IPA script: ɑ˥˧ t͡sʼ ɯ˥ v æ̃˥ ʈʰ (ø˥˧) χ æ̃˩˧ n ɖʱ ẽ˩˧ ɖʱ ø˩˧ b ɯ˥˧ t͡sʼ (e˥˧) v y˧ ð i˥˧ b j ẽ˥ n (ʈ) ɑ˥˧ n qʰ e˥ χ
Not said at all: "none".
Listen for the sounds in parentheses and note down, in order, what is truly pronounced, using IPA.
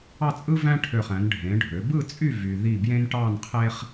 ø˧˩, y˥˧, ʈ

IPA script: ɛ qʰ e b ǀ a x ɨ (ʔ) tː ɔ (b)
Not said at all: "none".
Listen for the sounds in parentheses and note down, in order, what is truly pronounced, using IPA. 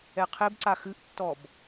ʔ, b

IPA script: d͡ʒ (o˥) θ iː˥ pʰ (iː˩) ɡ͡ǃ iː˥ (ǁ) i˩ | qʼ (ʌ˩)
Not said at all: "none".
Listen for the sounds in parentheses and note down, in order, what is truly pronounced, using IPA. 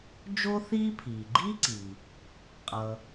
o˥, iː˩, ǀ, ʌ˩

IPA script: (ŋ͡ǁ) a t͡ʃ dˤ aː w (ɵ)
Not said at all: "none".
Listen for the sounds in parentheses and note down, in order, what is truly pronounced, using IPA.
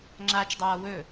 ŋ͡ǁ, ɵ

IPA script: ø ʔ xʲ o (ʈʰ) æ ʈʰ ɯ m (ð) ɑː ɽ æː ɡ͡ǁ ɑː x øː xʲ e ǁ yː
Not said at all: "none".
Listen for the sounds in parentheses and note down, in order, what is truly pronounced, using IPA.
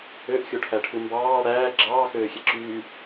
ʈʰ, b

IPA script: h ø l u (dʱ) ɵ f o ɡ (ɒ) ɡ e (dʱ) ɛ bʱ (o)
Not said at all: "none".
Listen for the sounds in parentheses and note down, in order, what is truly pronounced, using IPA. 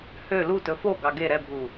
t, ɑ, ɾ, u

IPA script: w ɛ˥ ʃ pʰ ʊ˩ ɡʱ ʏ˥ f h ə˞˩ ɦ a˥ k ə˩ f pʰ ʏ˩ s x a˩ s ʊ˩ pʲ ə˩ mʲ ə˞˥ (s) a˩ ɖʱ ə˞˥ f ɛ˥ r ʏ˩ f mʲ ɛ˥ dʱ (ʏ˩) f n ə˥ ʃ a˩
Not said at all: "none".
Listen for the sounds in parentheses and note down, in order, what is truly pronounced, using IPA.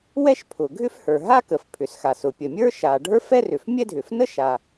ʃ, ʏ˩

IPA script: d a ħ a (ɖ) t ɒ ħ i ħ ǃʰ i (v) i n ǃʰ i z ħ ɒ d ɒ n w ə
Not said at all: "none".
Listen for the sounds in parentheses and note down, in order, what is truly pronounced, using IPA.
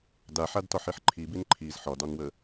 d, b

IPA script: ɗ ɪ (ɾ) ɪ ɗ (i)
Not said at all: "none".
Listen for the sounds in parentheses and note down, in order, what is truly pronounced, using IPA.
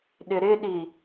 ɾ, i

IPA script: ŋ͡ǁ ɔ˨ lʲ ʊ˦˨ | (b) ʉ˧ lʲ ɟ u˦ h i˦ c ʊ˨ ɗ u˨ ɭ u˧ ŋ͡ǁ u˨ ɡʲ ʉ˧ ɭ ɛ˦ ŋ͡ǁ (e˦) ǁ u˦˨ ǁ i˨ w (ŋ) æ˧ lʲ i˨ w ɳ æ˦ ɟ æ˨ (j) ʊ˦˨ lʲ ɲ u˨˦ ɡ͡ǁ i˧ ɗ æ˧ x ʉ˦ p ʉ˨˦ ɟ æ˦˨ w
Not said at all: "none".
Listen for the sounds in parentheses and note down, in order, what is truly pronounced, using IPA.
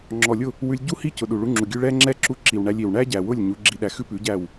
w, ɛ˦, ɳ, w

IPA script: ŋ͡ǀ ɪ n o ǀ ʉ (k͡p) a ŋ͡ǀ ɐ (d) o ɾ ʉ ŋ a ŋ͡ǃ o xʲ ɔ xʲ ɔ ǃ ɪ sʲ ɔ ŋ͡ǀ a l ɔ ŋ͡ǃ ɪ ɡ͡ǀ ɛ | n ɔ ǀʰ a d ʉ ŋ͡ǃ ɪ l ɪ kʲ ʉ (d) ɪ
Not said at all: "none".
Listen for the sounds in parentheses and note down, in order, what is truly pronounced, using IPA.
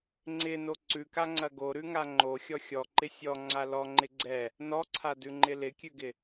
k, ɡ, ɡ

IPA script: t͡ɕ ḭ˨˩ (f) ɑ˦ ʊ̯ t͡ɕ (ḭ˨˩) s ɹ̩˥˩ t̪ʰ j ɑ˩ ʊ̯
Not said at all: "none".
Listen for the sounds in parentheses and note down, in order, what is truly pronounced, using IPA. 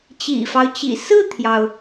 f, ḭ˨˩

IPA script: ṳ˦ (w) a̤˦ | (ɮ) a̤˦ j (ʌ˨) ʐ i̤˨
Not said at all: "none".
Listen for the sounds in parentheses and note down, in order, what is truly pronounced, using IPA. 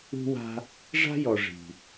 w, ʐ, ɔ˨

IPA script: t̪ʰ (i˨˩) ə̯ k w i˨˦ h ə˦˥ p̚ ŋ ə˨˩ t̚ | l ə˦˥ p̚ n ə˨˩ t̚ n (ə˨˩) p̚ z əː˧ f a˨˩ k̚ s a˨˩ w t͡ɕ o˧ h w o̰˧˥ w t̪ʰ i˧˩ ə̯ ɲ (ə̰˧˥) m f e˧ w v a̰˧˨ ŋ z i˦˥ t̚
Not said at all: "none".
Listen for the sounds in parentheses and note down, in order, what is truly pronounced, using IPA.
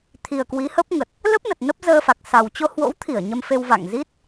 i˨˩, ə˦˥, ə˧

